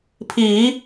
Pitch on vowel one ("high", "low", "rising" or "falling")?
low